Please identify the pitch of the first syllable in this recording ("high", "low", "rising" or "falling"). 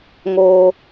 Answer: high